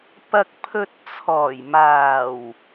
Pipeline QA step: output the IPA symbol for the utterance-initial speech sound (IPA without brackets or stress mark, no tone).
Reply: p